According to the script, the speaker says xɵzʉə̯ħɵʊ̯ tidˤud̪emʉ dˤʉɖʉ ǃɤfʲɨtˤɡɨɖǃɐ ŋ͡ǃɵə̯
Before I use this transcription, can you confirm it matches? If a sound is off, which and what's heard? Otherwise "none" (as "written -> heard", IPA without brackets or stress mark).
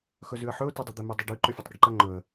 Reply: ɤ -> ɵ